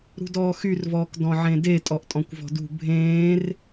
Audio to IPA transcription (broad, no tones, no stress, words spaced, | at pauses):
ɾṳdɔːxyrvɔːk dɔ̃ʕẽde tʼɔʔtʼɔ̃kʷvɔ̤dṳ bʱẽːr